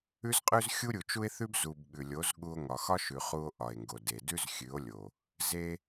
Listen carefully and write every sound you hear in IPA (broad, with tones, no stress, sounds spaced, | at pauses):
ʉ˦ z qʼ ʉ˦ z xʲ u˦ ɾʲ u˨ t͡ʃ u˦ e̯ θ ʉ˦ b z u˨ b ɠ ʉ˨ lʲ o˨˦ z ɠ u˧ o̯ ŋ ɒ˨ x ɒ˦ ʃ ʉ˨ χ u˧ o̯ ʔ ɒ˨ e̯ ŋ ɡ o˨ d e˨ d ʉ˦ z xʲ ʉ˨˦ o̯ lʲ o˨ | z e˧